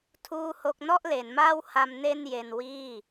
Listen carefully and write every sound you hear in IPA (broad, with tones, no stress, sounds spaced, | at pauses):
tʰ uː˥˩ h o˥˩ k̚ n ɔ˥˩ ʔ l e˩˦ n m aː˥˩ w h a˧ m n e˥˩ n j e˧ n w iː˥˩